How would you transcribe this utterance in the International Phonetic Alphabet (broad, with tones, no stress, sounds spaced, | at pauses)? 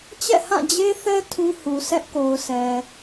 t͡ɕ ɛ̰˦˨ h ã˦˨ d͡ʑ e˦ θ ɛ˦ tʰ ũ˦ h u˨ s ɛ˦ ʔ k o˨ ʊ̯ s ɛ˨